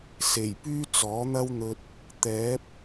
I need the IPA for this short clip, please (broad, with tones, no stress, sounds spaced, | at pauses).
s e˨˩ j p yː˥ t͡s ɔː˨˥ n̪ ɐ˥ w n̪ ɵ˧ t̚ | t̪ ɛː˨˥ p̚